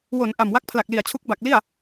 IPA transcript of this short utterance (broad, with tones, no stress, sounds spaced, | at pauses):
w o˩˦ n ʔ a˨˩ m w a˦˥ k̚ pʰ l a˨˩ k̚ l i˨˩ a̯ t͡ɕʰ u˦˥ k̚ b a˨˩ k̚ l i˥˩ a̯